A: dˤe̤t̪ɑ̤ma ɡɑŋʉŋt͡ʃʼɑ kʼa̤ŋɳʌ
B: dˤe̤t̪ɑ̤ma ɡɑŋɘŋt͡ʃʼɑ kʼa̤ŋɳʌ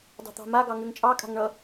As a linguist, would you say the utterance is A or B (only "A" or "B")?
A